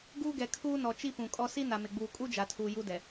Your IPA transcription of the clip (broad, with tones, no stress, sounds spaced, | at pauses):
ɡ uː˦ ɡ ɛ˨ kʰ uː˦ n ɔ˨ t͡ʃ i˦ p ũ˨ kʼ ɔ˦ s i˦ n a˨ m ɪ˨ ɡ͡b uː˨ kʼ u˦ d͡ʒ a˨ tʰ uː˨ j u˦ d ɛ˨